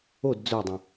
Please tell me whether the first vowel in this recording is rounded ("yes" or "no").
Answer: yes